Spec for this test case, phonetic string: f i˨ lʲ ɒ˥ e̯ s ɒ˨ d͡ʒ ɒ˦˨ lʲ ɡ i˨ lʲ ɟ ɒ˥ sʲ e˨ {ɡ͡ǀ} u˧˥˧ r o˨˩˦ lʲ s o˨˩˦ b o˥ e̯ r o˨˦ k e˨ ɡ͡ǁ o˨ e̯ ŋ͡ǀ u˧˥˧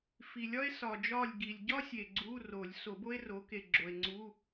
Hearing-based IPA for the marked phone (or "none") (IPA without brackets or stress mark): ɡ͡ǀ